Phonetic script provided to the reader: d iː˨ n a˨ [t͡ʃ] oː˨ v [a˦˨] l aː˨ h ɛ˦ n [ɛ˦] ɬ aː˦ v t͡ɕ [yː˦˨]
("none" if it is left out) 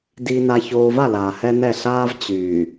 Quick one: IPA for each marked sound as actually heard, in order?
ç, a˦˨, ɛ˦˨, yː˨

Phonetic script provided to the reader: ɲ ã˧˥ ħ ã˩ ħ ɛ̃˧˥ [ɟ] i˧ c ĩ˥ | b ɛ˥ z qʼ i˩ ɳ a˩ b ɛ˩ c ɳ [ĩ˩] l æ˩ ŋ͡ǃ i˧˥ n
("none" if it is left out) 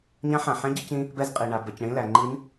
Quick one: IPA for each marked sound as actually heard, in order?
ɟ, ĩ˧˥

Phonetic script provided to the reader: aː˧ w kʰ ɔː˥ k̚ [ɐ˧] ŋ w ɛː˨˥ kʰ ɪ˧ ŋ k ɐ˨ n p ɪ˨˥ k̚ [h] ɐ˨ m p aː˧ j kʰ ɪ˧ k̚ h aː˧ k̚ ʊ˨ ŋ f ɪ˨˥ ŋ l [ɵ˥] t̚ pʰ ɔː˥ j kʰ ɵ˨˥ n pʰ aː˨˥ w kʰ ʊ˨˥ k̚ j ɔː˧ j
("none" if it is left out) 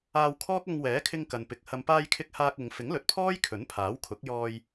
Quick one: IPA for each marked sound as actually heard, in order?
ɐ˧, h, ɵ˨

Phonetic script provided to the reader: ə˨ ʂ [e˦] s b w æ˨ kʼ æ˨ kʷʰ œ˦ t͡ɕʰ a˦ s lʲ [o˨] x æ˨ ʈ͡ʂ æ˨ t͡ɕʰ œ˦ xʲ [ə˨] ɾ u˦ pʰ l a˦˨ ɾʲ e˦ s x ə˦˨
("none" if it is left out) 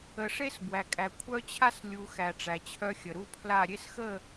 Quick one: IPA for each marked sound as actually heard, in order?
e˦, u˨, ə˨

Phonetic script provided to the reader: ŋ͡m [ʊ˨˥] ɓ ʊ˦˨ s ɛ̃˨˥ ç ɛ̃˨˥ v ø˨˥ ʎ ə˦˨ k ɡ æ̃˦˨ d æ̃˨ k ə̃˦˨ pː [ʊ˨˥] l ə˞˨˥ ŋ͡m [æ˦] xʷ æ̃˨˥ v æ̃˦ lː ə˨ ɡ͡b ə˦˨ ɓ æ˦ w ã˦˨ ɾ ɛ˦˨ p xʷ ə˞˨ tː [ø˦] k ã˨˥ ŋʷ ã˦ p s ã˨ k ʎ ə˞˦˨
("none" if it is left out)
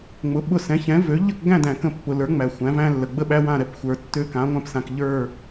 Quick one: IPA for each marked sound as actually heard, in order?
ʊ˨˥, ʊ˨, æ˨, ø˦

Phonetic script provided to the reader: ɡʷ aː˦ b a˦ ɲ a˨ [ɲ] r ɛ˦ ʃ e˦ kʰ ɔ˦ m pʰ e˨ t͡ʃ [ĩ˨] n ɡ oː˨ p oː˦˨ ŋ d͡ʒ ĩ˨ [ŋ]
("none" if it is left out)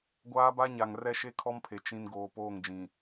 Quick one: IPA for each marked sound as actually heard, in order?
ŋ, ĩ˨, none

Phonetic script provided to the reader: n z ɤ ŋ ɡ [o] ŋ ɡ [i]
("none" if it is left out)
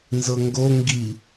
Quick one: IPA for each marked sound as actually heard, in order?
o, i

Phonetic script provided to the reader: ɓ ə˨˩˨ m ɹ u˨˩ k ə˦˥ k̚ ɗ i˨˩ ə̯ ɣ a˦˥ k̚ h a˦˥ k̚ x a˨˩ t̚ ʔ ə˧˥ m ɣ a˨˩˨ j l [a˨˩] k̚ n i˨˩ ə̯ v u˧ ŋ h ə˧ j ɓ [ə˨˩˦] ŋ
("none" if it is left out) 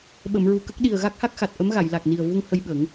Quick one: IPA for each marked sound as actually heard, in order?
a˨˩, ə˨˩˦

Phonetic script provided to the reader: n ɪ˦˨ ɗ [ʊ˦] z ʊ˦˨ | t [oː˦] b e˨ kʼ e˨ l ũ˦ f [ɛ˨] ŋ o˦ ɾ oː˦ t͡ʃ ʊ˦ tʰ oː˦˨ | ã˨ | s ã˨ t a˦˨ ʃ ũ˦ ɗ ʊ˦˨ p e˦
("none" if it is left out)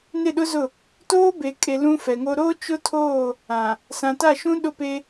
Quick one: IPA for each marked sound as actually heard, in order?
ʊ˦, oː˦, ɛ˨

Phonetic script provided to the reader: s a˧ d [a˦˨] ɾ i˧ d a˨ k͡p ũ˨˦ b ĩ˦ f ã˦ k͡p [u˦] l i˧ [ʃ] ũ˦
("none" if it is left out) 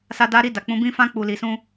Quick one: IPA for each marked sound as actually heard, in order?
a˧, u˧, s

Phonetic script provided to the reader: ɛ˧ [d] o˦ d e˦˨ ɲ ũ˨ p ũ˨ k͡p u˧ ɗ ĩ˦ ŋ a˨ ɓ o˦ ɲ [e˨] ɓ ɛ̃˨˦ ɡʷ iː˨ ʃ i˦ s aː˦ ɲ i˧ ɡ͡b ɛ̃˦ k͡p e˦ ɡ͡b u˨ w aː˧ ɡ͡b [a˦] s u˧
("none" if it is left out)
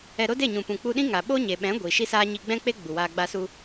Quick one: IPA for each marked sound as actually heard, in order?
ɾ, e˨, a˧

